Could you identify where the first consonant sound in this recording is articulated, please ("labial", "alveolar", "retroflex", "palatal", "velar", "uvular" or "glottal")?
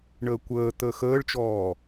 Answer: retroflex